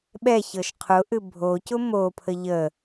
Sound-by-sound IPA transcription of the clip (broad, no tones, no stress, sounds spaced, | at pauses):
ɓ ɛ ç ɤ ʃ qʰ ʊ ʔ ɨ bʱ o c ʊ m o pʰ ə ʎ ə